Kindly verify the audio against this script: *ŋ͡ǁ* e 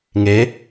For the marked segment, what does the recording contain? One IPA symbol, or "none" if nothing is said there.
ŋ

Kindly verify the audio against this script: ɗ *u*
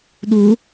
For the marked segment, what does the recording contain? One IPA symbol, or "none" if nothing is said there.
u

